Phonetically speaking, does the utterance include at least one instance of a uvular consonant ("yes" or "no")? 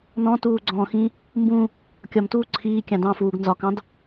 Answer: no